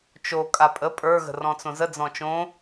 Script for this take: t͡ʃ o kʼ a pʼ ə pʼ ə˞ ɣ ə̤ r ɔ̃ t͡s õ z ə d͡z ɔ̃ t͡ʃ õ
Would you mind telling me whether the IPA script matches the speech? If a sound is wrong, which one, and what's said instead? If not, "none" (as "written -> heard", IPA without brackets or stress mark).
none